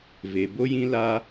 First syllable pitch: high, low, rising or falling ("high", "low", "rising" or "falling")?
low